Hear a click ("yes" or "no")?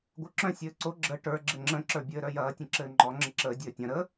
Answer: yes